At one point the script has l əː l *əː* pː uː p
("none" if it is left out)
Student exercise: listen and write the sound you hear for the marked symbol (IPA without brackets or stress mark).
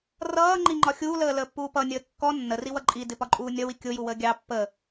əː